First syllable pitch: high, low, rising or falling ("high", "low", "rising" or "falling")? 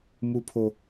high